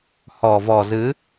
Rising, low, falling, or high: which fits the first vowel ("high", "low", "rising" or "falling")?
low